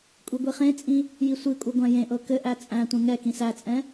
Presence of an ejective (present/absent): present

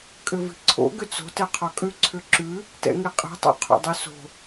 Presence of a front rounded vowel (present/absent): present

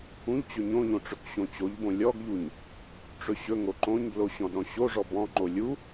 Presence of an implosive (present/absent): present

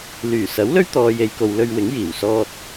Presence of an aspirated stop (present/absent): absent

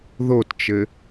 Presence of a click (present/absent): absent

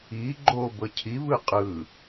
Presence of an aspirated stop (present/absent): present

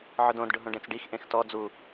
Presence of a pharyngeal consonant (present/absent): present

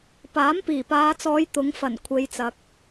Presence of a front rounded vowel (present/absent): absent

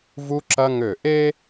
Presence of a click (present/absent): present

